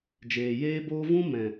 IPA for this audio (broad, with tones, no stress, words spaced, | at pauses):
d͡ʒeː˨jeː˦boː˦ vũ˦ mɛ̃˨